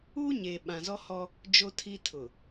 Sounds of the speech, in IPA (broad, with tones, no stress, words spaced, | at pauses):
uː˦ ɲeː˨ ɓã˨zɔ˦hɔ˦ | d͡ʒo˦tʰi˦ tʰʊ˨